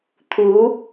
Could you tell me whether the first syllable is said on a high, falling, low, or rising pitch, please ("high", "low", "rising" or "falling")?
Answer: rising